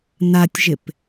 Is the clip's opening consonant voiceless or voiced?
voiced